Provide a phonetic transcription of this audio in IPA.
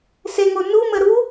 seŋo numə ɾu

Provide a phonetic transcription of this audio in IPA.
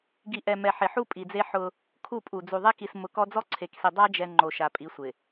ɡi˨ʔɛ˨ mɛ˨ħɪ˨ħu˦ pʼi˨d͡ze˦ħʊ˦ | kʰu˦˨pʼu˨ d͡zu˨ðˤe˦ki˨s mʊ˨ kɔ˦ d͡zɔ˦ǀʰe˨ksi˨ dˤa˦d͡ʒɛ˨ ŋ͡ǃo˨ʃa˨pʼi˨˦sʷɪ˨

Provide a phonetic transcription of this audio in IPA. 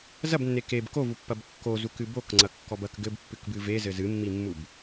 zɐbnːe keb kovupːɐb kːozukɨ bokŋ͡ǀɐkːɔb ɐk ɡɘbpːɨkbɨ vezɘ zɨmːimːub

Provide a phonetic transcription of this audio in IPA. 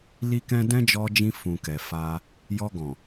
li˦kɛ̃˦ dɛ̃˦d͡ʒɔ˧d͡ʒĩ˧ fũ˨kɛ˨fa˧ | jɔ˧ɡɔ̃˨

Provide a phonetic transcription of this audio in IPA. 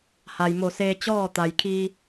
ha˩jmo˧˩seː˧ t͡ɕɔː˥˨t̪a˩jkʰiː˧

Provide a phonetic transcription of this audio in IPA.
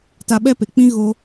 ta˧ɓɛ˦pe˨k͡pĩ˦ ɣo˦

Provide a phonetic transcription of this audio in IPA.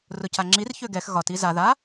rʊcaŋ͡ǁir çøɡɛx ɣɒt iza ða

